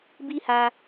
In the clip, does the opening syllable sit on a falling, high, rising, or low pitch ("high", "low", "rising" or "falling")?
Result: high